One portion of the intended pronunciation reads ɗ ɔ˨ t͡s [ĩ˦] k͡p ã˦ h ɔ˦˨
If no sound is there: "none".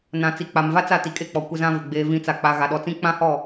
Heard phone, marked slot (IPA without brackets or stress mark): ĩ˦